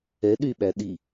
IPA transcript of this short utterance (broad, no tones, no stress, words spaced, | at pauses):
ɛ ɗyɓæ ɗi